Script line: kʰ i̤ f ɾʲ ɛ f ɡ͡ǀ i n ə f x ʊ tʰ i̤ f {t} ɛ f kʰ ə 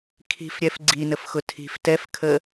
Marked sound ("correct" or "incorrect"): correct